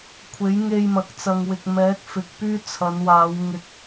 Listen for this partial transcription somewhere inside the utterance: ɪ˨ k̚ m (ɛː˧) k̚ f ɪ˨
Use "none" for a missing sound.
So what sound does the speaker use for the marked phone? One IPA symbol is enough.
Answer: ɛː˨˥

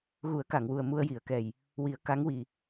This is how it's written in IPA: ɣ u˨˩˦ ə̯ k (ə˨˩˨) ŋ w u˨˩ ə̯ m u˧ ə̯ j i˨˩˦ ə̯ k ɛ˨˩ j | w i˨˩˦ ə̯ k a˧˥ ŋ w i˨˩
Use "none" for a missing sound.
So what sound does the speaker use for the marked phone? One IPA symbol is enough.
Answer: a˨˩˨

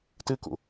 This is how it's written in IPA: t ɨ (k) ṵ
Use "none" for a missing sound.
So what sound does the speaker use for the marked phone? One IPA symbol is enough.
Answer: k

